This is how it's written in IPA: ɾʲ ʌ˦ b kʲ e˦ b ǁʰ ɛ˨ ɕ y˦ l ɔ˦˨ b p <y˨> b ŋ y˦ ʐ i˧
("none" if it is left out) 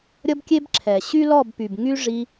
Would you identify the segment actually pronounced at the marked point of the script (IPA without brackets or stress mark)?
y˨